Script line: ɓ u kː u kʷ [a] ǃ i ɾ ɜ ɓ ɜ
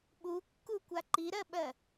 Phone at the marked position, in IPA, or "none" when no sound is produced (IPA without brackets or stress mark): a